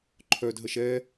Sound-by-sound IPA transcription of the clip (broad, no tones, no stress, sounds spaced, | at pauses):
ǃʰ œ d ɦ ə ʃ ɛ